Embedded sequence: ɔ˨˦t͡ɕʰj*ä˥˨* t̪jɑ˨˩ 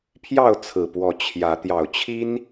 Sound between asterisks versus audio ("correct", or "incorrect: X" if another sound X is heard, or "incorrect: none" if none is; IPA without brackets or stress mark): incorrect: ä˨˦